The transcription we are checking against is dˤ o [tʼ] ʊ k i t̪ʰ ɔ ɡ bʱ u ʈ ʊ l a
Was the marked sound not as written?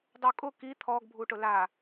yes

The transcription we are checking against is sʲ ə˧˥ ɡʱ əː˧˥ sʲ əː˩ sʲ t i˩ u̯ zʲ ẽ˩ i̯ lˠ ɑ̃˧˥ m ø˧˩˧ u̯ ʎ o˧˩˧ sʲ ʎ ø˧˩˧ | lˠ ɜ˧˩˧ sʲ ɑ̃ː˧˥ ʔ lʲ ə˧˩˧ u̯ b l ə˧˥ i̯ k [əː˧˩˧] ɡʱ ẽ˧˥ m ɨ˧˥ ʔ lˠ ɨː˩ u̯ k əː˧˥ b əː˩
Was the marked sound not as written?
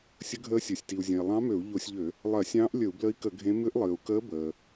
yes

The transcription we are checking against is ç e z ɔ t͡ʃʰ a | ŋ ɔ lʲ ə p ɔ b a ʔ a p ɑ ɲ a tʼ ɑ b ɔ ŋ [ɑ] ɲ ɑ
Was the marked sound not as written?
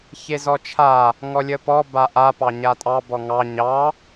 no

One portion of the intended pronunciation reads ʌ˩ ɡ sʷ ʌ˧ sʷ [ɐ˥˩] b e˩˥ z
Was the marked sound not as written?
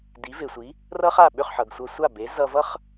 yes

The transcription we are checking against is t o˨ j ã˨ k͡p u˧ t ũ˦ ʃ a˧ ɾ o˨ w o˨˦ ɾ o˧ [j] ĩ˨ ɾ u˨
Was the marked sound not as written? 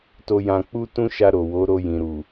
no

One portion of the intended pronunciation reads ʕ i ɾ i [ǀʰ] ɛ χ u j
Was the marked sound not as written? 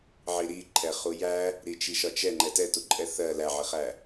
yes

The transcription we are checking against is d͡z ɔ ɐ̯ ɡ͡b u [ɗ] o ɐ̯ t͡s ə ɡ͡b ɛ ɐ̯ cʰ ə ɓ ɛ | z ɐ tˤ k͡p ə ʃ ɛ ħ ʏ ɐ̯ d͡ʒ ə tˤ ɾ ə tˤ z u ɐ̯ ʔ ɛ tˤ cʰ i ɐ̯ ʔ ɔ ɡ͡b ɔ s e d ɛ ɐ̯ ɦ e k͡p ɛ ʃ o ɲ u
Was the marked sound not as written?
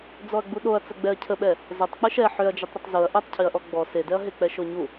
no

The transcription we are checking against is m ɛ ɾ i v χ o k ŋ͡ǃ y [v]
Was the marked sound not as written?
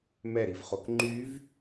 no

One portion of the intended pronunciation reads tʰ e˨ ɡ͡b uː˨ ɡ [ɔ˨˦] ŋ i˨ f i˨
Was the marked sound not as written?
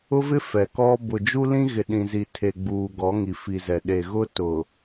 no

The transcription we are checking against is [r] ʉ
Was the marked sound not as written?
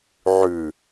yes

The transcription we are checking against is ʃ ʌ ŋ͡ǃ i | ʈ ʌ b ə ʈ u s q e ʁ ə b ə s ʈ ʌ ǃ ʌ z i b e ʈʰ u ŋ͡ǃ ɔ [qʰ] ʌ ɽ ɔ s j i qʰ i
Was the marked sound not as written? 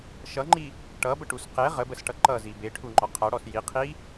no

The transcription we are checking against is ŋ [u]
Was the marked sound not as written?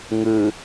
yes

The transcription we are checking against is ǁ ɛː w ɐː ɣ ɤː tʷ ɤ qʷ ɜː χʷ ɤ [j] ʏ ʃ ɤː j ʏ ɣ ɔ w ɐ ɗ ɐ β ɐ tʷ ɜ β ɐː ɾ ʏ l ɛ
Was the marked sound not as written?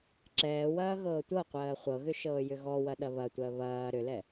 yes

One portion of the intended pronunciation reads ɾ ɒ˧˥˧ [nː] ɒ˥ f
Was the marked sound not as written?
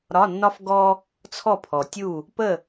no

